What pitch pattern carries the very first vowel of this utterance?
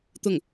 falling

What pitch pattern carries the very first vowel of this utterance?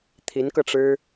rising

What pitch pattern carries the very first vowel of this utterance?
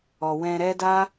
low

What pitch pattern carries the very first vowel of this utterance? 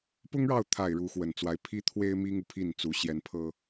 high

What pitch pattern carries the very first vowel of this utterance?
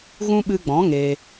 high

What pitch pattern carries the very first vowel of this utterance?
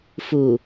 low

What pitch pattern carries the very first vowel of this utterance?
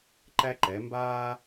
high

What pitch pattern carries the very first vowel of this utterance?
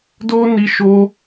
high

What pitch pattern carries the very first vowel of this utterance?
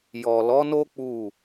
low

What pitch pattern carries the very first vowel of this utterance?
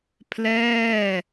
falling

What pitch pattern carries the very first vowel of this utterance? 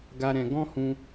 high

